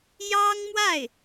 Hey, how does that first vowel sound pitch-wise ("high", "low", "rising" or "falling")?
high